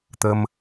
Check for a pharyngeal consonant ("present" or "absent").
absent